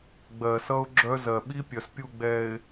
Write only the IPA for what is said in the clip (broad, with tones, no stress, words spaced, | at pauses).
ɡ͡bɜ˨sʌ˦ʊ̯ ɡ͡ǁœ˦zɜ˨ ɓi˦pʲœ˨spʲu˦˨ɡ͡bɛ˨ɪ̯